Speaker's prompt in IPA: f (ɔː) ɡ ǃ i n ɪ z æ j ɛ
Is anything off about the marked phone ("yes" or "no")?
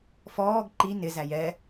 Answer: no